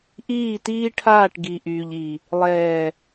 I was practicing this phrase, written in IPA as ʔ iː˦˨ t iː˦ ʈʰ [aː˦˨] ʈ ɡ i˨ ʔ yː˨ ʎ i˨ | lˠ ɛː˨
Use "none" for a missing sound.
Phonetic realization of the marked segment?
aː˦˨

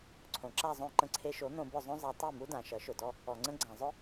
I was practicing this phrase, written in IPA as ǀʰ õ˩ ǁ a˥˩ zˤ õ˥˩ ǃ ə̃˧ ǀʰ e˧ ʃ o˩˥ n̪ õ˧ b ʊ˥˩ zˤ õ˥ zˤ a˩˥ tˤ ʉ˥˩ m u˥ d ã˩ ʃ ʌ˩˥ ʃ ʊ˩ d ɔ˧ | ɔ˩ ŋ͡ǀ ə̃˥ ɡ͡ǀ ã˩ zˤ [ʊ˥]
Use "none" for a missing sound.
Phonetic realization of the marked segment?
ʊ˥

